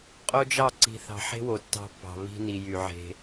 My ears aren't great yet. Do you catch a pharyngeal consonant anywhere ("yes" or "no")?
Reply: yes